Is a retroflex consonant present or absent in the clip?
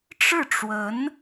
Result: present